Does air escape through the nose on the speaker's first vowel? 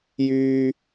no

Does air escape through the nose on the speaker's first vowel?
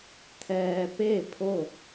no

